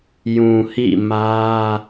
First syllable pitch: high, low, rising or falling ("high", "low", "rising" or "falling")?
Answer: low